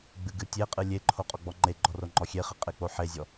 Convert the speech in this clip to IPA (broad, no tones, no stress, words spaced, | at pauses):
ɡ͡bɨɡɨtʲeqʼɨ lʲeǃʰo qʼɔɡ͡bɔŋ͡ǃeɡ͡ǃɔ roŋ͡ǃɔxʲeχɨ qʼek͡poħezʲɔ